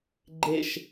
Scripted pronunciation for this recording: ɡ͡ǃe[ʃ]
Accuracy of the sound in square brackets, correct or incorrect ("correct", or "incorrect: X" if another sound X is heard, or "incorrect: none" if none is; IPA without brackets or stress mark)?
correct